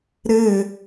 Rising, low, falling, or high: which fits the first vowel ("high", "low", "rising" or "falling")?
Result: falling